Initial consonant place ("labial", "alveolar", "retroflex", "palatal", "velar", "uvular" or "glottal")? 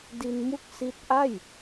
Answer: alveolar